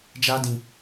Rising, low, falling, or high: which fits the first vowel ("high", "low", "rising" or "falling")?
high